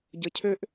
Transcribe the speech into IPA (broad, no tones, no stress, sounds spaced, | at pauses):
ɟ ə cʰ ø ʔ